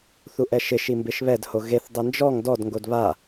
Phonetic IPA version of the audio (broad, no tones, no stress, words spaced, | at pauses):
θuʔɛʃɪ ʃimbɪʃβɛd hoɣeθ dˤind͡ʒɔŋ dɔd ŋɡodβa